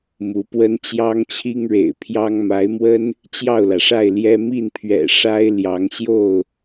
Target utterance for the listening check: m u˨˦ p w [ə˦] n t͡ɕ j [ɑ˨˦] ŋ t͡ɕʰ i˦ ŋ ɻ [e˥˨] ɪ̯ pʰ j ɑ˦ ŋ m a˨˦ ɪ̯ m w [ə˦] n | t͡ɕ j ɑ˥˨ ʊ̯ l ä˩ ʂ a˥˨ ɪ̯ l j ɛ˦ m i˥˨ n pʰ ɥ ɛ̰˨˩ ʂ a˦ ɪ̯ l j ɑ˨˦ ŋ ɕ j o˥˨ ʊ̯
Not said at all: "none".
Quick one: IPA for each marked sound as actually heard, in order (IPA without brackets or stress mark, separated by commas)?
ə˦, ɑ˦, ḛ˨˩, ə˦